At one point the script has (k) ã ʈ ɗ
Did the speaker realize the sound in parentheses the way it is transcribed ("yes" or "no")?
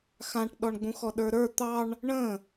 no